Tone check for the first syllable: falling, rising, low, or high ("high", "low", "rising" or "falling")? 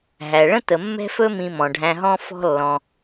low